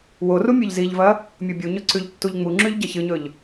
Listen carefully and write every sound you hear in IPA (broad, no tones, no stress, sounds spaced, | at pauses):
w o r u mʲ ʉ ʎ z i ʎ v ɐ | mʲ o bʲ u ɲ ɵ ǀ ʉ ʎ tː u ʎ ŋ͡m u ŋ͡ǁ ʉ ʎ ɟ ɐ ç ɨ ɲ ɵ ʎ